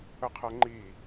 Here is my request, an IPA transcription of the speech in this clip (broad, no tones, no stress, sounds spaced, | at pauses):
ə qʰ ɛ ŋ͡ǃ i